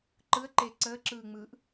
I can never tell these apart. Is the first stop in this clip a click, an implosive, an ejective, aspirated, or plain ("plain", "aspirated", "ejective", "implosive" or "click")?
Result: click